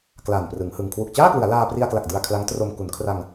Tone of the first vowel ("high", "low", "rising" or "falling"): low